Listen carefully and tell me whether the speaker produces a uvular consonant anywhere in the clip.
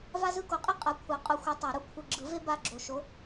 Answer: yes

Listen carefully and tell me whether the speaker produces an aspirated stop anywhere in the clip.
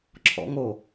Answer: yes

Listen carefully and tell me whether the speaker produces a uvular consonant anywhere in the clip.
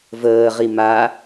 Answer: yes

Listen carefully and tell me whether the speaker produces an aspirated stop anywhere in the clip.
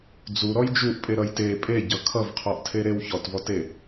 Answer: yes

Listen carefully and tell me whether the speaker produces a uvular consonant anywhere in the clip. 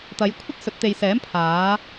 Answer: no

